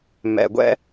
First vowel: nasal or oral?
oral